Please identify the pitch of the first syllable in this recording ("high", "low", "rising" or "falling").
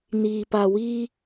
low